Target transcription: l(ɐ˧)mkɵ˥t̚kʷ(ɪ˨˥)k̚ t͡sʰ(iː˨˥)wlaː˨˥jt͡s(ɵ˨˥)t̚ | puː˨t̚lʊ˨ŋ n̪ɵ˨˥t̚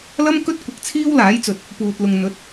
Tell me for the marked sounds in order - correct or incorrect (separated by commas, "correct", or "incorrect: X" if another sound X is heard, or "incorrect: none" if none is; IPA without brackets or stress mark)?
incorrect: ɐ˥, correct, incorrect: iː˥, incorrect: ɵ˨